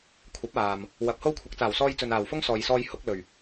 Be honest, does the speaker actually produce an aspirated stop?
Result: yes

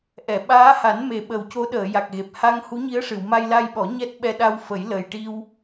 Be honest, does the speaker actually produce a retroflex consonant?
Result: yes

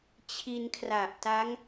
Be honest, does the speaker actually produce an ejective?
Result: no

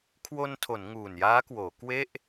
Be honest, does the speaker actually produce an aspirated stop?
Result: yes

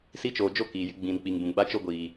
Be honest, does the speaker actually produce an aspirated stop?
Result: no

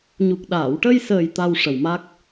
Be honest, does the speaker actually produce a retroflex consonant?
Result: yes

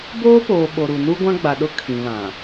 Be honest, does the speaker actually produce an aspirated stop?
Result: yes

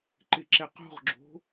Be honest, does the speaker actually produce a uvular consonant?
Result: yes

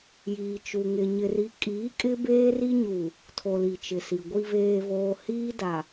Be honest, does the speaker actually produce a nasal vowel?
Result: no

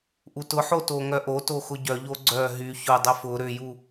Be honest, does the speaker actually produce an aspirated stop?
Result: no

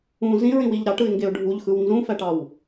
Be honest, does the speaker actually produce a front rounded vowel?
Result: no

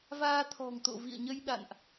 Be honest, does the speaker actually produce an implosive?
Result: yes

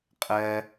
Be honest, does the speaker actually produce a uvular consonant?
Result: yes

